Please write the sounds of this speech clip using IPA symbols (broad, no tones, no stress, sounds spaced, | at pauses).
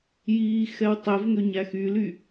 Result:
j iː x ɛ w tˤ ɛ v ŋ ø ɲ æ x y l y